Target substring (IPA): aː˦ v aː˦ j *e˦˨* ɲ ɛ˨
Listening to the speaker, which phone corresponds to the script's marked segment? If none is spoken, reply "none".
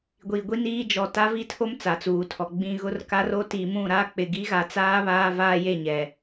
e˦˨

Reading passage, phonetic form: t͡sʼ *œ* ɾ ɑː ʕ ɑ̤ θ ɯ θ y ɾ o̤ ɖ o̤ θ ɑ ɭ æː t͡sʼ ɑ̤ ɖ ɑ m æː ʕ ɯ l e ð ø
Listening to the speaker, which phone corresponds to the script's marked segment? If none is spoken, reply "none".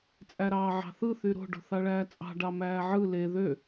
æ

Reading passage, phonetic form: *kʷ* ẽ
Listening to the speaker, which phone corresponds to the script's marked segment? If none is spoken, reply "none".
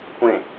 kʷ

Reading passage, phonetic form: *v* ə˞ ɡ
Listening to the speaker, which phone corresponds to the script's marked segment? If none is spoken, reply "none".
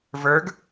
v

